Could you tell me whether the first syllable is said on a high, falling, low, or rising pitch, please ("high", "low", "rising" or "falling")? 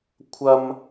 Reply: high